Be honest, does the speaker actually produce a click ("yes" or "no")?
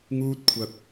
no